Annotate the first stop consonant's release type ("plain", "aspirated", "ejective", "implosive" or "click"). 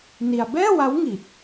plain